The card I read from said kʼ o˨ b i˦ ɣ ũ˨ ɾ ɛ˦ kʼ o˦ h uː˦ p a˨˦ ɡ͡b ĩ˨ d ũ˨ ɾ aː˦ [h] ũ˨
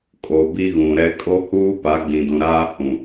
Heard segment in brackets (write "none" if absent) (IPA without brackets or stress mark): h